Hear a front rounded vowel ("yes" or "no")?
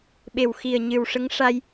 no